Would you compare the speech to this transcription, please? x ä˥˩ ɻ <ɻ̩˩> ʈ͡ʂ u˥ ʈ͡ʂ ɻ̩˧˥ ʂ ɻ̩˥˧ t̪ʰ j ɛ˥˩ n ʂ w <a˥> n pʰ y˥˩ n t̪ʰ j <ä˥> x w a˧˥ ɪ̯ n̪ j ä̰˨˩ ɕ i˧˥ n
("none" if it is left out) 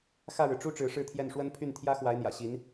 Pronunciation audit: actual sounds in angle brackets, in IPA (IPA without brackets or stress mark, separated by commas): ɻ̩˩, ə˥, ä˥